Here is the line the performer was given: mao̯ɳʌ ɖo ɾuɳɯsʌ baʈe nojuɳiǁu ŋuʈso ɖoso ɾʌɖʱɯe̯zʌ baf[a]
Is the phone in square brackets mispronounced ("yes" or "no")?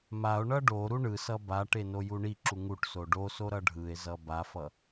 yes